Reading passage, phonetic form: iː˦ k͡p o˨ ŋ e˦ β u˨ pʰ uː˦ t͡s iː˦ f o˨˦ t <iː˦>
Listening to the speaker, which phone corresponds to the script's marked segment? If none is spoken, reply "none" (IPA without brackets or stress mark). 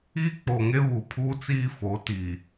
iː˨